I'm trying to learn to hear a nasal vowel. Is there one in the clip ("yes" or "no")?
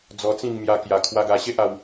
yes